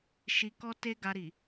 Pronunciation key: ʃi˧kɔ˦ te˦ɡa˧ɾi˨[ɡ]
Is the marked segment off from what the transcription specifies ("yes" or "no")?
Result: yes